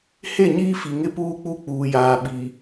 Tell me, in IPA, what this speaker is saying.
h e˦˨ ɲ iː˦ f i˨ ŋ ɪ˦ p uː˦ k͡p u˦˨ k͡p uː˨ j aː˨ ɓ i˨

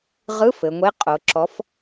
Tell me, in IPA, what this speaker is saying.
ʁ ɯ˧˥˧ f ɘ˩˧ ŋʷ e˧˥˧ qʼ o˩˧ ǁ ɔ˩˧ f

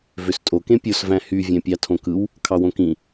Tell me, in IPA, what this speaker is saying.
v ø s tʼ o k ẽ pʲ o s v æ̃ h y vʲ æ̃ pʲ ɑ tʰ õ k ɯ w | kʰ ɑ w õ k ĩ

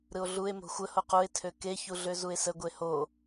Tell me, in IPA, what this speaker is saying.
ɾ ɯ o̯ ɮ u e̯ m o̤ xʷ ə h o q u e̯ tʰ ø k e ç u ɮ ø z u e̯ s ə ɡʷ e h o

